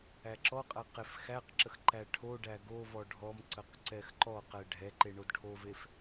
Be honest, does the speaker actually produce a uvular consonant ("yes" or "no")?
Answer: yes